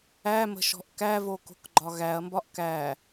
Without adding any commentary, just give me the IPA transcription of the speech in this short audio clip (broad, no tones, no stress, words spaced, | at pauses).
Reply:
æmə̤ʃɔ̤ʔ kævoko̤kɡ͡ǃɒ ɣæɐ̯mbɒʔ kæ